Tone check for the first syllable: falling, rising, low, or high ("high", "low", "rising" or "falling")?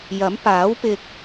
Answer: rising